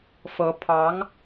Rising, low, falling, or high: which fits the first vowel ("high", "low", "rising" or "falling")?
rising